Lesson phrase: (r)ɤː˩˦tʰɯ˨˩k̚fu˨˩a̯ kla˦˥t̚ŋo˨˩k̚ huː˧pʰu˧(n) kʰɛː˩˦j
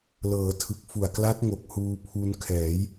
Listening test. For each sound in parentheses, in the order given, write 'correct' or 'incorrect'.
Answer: incorrect: l, correct

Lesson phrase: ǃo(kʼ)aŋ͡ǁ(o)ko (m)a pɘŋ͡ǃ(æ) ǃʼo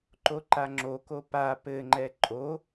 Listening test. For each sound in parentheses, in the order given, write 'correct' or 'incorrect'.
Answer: incorrect: ǃ, correct, incorrect: p, incorrect: ɛ

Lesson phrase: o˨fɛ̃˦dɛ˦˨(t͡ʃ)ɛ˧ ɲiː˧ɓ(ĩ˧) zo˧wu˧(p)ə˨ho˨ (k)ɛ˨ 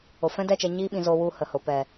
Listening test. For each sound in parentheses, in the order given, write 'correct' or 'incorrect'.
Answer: correct, incorrect: ĩ˨, incorrect: h, incorrect: p

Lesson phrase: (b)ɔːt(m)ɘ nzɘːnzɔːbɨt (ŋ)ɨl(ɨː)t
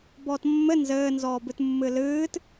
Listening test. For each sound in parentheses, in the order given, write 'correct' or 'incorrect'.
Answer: correct, incorrect: mː, incorrect: mː, correct

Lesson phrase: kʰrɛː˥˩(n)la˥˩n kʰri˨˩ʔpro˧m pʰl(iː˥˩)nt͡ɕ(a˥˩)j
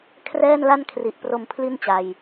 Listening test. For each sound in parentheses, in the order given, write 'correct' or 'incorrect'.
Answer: correct, incorrect: i˥˩, incorrect: a˨˩

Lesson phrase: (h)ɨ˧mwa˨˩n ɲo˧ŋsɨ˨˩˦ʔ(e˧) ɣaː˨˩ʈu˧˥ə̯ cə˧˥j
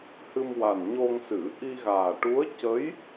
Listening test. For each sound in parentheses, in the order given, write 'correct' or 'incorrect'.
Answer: correct, incorrect: i˧

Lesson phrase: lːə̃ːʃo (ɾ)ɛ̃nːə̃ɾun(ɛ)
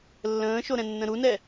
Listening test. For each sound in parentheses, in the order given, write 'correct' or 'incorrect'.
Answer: correct, correct

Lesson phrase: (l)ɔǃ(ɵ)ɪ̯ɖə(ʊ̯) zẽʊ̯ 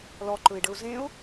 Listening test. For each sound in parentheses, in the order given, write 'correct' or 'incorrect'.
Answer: correct, correct, correct

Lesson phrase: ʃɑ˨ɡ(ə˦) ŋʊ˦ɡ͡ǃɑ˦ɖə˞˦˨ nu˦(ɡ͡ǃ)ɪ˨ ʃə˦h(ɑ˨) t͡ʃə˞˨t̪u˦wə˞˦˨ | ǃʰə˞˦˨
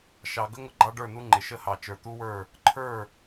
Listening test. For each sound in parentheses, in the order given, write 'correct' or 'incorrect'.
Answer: correct, incorrect: ŋ͡ǃ, correct

